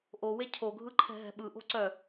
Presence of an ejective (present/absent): absent